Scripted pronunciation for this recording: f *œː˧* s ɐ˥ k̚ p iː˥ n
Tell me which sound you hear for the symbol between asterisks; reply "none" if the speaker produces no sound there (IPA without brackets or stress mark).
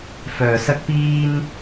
œː˧